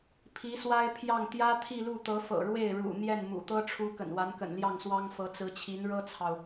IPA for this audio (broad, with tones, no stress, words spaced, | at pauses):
pʰi˧˥swa˥ɪ̯pʰjɑ˥˩ŋ t̪jä˥t̪ʰi˥˧lu˥˩ t̪ɤ˧˥fɤ̰˨˩ɻwe˥˩ɪ̯ ɻṵ˨˩ n̪jɛ˥˩nmṵ˨˩ t̪ɤ˥ʈ͡ʂʰu˧˥ kə̰˨˩nwa˧˥nkə̰˨˩n ljɑ˥˩ŋswɑ˥ŋ fɤ˧˥t͡sɹ̩˧˥t͡ɕʰi˧˥n ɻɤ˥t͡sʰɑ˨ʊ̯